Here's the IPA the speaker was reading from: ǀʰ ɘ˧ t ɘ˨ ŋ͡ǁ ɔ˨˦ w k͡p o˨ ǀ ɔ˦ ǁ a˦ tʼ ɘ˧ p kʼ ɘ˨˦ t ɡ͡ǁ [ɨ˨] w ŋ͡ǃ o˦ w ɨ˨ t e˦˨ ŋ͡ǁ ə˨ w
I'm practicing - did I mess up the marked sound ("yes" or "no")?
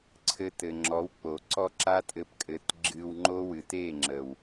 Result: yes